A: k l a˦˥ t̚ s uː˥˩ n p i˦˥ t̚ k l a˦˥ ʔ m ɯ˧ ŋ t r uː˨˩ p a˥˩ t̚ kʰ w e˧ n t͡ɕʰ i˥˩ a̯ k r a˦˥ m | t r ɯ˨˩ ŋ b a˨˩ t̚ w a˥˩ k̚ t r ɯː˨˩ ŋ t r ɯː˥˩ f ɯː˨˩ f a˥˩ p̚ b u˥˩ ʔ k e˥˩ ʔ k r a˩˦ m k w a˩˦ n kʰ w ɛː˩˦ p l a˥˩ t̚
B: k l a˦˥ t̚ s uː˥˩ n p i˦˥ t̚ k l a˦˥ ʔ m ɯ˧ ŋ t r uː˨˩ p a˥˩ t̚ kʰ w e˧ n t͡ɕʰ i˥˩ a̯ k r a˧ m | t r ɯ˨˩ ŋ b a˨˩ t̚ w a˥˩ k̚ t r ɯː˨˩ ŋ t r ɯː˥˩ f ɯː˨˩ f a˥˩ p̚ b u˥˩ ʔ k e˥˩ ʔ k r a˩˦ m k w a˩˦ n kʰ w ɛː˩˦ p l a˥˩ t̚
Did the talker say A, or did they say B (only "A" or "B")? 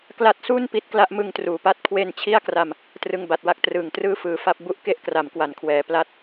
B